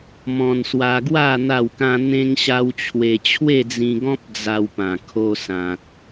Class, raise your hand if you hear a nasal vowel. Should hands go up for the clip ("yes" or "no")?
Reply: yes